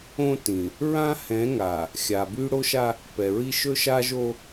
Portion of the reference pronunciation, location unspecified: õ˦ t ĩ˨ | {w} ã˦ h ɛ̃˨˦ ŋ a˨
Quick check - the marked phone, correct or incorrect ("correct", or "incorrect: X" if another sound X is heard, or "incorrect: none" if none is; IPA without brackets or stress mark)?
incorrect: ɹ